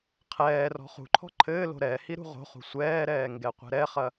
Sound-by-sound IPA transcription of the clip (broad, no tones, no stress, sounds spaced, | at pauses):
qʰ ɛː r ɔ̤ χ ṳ ǃʰ ɔ̤ ǃʰ ɘː l o̤ ɾ ɛ h i ɾ ṳ ʁ o̤ χ ṳ sʷ ɛː ɾ ɛː ŋ ɡ ɛ qʷ ɛ̤ ɾ ɛ χ ɐ